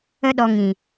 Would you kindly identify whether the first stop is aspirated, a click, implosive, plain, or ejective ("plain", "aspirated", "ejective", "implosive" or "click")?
implosive